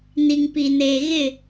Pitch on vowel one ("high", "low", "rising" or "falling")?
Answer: low